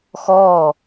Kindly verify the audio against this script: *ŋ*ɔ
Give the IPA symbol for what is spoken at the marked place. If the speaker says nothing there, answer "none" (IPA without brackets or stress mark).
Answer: x